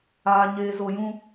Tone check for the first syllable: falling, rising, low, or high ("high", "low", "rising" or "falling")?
low